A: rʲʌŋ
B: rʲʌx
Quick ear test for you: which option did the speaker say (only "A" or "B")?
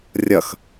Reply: B